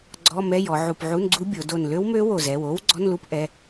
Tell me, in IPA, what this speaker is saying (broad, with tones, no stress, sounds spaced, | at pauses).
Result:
ɡ͡ǀ ɔ˧˥˧ m ɛ˧˥˧ j ɔ˩˧ ʕ u˧˩ p ʕ u˧˥˧ n ɡ͡ǀ u˦˥ bʲ o˩˧ d o˧˩ n l ø˦˥ w m ø˦˥ w o˧˩ z ɛ˩˧˩ w o˦˥ w ɡ͡ǀ ɔ˧˥˧ n l u˦˥ p ʔ ɛ˩˧˩